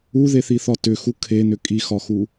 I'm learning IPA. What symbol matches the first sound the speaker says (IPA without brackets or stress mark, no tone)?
u